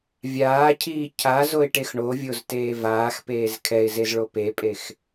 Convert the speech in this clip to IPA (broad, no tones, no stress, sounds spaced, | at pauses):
vʲ aː cʰ iː cʰ a z o ɪ̯ ʈ e x ɳ o vʲ o z t eː v aː x p eː z kʰ ɛ ɪ̯ z e z ɭ o p e pʼ e x